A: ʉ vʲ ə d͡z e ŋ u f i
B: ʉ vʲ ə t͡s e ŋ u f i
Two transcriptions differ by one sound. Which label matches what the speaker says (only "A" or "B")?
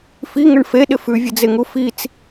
A